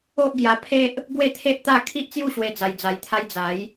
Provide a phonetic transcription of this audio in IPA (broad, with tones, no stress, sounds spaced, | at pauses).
o˦ ʔ ɡ j a˧ pʰ e˦ ʔ | ɡ w e˥˧ t̪ʰ e˦ ʔ t̪ a˥˧ kʰ i˦ ʔ t͡s j u˥˧ ɕ w e˧ d͡z a˧ j d͡z a˧ j t̪ʰ a˦ j d͡z a˨˦ j